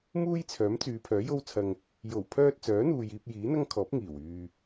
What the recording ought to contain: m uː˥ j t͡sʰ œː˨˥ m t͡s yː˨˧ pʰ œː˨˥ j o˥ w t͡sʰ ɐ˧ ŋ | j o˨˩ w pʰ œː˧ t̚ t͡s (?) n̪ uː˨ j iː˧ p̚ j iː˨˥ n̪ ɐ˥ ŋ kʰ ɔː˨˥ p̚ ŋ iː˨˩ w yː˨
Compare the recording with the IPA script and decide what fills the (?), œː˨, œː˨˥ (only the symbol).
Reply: œː˨˥